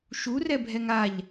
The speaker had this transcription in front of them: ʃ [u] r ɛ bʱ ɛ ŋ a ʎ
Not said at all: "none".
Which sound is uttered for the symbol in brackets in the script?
u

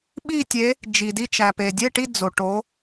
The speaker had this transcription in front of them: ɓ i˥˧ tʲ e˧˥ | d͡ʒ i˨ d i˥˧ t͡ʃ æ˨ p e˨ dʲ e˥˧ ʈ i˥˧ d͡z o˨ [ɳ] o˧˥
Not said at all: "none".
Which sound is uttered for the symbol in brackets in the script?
ʈ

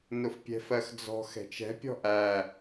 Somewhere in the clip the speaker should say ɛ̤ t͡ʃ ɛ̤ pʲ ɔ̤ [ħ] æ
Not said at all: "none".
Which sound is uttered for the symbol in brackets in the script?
ʔ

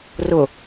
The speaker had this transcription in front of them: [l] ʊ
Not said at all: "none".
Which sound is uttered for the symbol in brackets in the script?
r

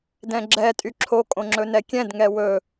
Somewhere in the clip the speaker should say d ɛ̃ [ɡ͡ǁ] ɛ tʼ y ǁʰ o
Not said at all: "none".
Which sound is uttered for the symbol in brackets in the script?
ɡ͡ǁ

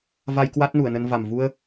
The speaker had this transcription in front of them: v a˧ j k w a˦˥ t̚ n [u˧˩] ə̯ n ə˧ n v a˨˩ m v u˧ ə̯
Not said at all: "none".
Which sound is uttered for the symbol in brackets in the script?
u˧˩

